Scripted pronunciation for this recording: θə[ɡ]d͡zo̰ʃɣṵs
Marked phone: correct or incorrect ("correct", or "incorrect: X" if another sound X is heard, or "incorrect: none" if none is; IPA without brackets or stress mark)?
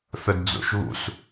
incorrect: d